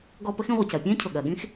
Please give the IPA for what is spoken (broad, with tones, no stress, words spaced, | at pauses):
ɡɔ˦ pə˥x ĩ˦ ʁʷə˨c ɜ˨pʲɛ̃ː˥cʰʊ˩ ɠɜ˨ɠĩ˥x